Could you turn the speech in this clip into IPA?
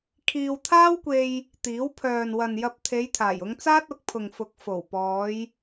kʰ iː˧ w t̪ʰ aː˥ w kʷ e˧ j | t̪ iː˨˥ w pʰ œː˨ n w ɐ˨ n j ɐ˧ p̚ t̪ʰ e˨˧ j t̪ʰ aː˨˩ j ʊ˨˧ ŋ t͡s aː˥ t̚ ʊ˨˥ k̚ pʰ ʊ˨ ŋ f ʊ˨˥ k̚ f o˨˩ w p ɔː˨˧ j

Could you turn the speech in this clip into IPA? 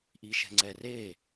ʔ i ʃ ɛ̤ ŋ͡ǀ ɛ r e

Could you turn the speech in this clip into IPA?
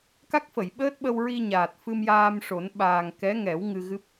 k a˦˥ k̚ f ə˨˩˨ j ɓ əː˦˥ t̚ ɓ ə˧ w ɹ i˧ ɲ aː˨˩ t̚ f ɨ˧ m j aː˧ m ʂ o˨˩˦ n ɓ aː˨˩ ŋ k ɛ˧˥ ŋ ɛ˨˩˦ w ŋ ɨ˧ ɣ ɨ˦˥ p̚

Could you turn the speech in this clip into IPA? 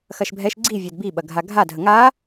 x ɐ ʃ bʱ ɛ ʃ ɡ͡ǀ i vʲ a d b i ɓ ɐ ɡʱ a ɡʱ a dʱ ə ŋ a

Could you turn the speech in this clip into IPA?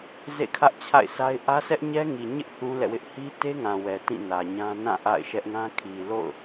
z ḛ˦˨ kʰ ä˦ ʔ t͡ɕʰ a̰˦˨ ɪ̯ s a˦ ɪ̯ ʔ ä˦ s ɛ˦ ʔ ɲ ɛ˦ ŋ i˨ ɲ ɪ˦ ʔ θ ũ˦ l ɛ̰˦˨ w ɪ˦ ʔ h i˦ t e˦ ŋ ã˨ w ɛ˨ t ĩ˦˨ n ä˨ ɲ ã˦ n ã˦˨ ʔ a̰˦˨ ɪ̯ ʃ ɛ˦ ʔ ŋ ã˦ kʰ i˨ l o̰˦˨ ʊ̯

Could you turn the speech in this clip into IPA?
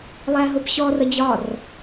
lˠ æ ɦ ʊ p ɕ ɔ r ə d͡ʑ ɒ r

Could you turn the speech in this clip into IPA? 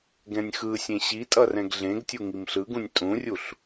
ɡ ɛ̃ nʲ x ɯ sʲ ẽ ɕ i tʼ ʌ r ɛ̃ ɡ ɮ ẽ ɡ tʲ u ŋ i m ɬ ɯ ɡ ũ nʲ tʼ ũ rʲ u ɬ

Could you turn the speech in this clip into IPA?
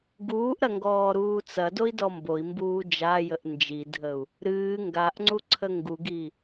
ɡ uː ʔ ɾ ɐ ŋ ɡ ɔː ɾ uː t͡s ɐ d o i̯ d ɔ m b o i̯ m b uː d͡ʒ a j ə ʔ n d͡ʒ i dʱ ə u̯ | ɾ ɨː ŋ ɡ a ʔ ŋ͡ǀ u ǀʰ ə ŋ ɡ u ɡ i

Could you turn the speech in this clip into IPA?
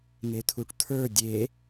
ŋ e t̪ʰ u ʈ t̪ʰ ə˞ dʲ e

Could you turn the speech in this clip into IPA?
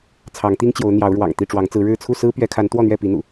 t͡sʰ ɑ˨˦ ŋ t̪ i˦ ŋ t͡ɕ j o˨˦ ʊ̯ n̪ j ɑ˨˦ ʊ̯ ɻ w ɑ̰˨˩ ŋ t̪ i˥˨ ʈ͡ʂ w ɑ˨˦ ŋ t͡s ɹ̩˨˦ ɻ ɻ̩˥˨ t͡sʰ u˥˨ s ɹ̩˦ p ɥ ɛ˨˦ kʰ a˨˦ n t̪ w ɔ˥˨ n̪ ɥ ɛ˥˨ p i˨˦ n̪ ṵ˨˩

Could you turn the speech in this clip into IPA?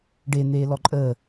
ɖ e n̪ eː l ɔ ǃʼ əː

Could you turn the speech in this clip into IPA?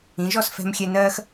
ĩ˩˧ ʒ ɔ˥˧ s f ɛ̤˧ m xʲ ɛ˧ n ɜː˥ x

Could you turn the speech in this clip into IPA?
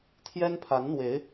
t̪ʰ j ɛ˥ n pʰ a˧˥ n n̪ w e˧˥ ɪ̯

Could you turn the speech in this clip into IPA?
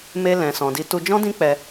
m e˦ l ɛ̃˧ s ɔ̃˧ d i˦ t u˧ d͡ʒ ɔ̃˦ d ĩ˦ k͡p ɛ˧

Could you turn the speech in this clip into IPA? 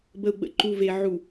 b ə˨ u̯ ɡ͡b ə̰˨ ǃ u˨ v e˨ ʕ u˨

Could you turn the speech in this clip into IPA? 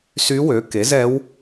s y˧˥ w ø˩˥ k e˩˥ z ɛ˧˥ w

